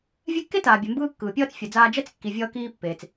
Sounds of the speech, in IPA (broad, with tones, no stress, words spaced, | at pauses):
vʲɛ˦kːe˥ taː˨bʲɛ˨mbɯː˦ kːɯː˩pʲʌː˦t͡s fʲɛ˨d͡zaː˦ d͡ʒɛ˥t͡skːi˨ vʲʌː˦kiː˦ pːeː˩t͡s